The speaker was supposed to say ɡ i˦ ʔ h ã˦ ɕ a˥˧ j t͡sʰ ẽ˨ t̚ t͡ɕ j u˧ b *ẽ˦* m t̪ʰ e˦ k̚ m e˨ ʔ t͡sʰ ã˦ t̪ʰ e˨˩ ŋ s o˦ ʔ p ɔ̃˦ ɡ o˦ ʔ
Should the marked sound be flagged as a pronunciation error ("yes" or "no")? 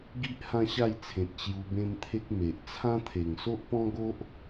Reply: no